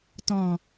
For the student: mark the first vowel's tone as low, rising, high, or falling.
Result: low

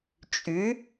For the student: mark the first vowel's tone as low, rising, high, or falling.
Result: rising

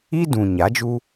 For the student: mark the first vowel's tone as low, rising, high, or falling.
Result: high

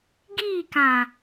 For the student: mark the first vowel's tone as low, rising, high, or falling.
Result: falling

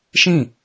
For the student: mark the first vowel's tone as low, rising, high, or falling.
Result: falling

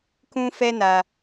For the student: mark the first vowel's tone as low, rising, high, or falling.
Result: high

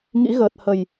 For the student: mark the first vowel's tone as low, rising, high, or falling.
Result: rising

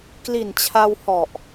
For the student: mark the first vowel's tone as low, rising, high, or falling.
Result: low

